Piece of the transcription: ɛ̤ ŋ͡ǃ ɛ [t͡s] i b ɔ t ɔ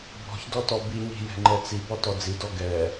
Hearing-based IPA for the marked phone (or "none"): t͡s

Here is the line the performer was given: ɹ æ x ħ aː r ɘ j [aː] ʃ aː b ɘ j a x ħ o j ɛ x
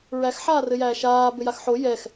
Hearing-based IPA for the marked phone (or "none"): æː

